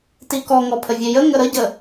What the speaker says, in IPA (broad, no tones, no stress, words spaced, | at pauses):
tikɔŋɔ pʰəvʲejə ŋəɾəɟə